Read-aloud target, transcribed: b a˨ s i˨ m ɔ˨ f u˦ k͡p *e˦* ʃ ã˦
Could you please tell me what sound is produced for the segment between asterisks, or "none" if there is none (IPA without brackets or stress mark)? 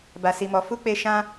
e˧